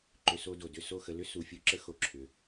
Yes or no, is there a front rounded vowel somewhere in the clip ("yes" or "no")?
yes